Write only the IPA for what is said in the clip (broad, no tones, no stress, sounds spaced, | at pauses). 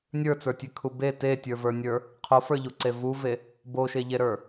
nʲ ə˞ t͡s ə˞ tʲ e kʰ u b e t e tʲ ə˞ v ə˞ nʲ ə˞ | qʰ o f ə˞ ʎ u ǀ e v u v e | b o ʃ e ʎ e ɾ ə˞